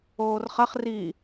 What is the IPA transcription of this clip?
oː r χ ɐ χ r i

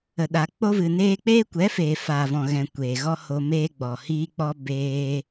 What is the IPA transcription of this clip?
ə˨ ɗ a˨ k͡p o˧ v ɨ˨ n eː˦ k͡p eː˦ kʷ ɛ˨˦ f eː˨ f aː˨ v ɔ̃˨ ɣ ɛ̃˨ kʷ eː˨ ɣ ɔ˦ h o˧ m eː˦ ɡ͡b ɔ˨ h iː˦ k͡p ɔ˦ b eː˧

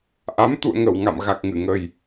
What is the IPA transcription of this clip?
ʔ a˨˦ m t̪ ṵ˧˨ ə̯ ŋ ə˧˩ w ŋ a̰˧˨ m ɣ a˨˩ k̚ ŋ ɨ˧˩ ŋ ə˨˩ j

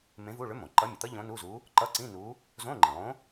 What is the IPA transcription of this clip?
m ẽ˧˥ v u˧˥˧ ɭ ʏ˧˥ m õ˩ ǃ ʌ˧˥ mʲ ʊ˩ t̪ ʌ˥ ʎ õ˧˥ n u˧˥˧ z u˧˥ | ǃ ʌ˧˥˧ ǀ ĩ˧˥˧ n u˧˥ | z õ˧˥˧ ŋ͡ǃ ĩ˩ lˠ õ˧˥

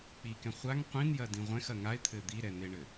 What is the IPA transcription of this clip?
k͡p i k ɛ̃ χʷ a ŋ qʷ ĩ n j ɐ d ĩ ʁʷ ɛ̃ x ɐ ŋ a ɪ̯ t̪ʰ ɘ d̪ i ɾ ɛ n̪ e ɳ ɘ

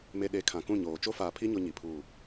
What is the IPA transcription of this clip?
m e˨ ɗ e˨˦ kʰ ã˨ k ũ˦˨ ɲ oː˨ t͡ʃ o˦ f aː˨ pʰ i˦ ɲ o˦ ɲ i˨ pʰ uː˦˨

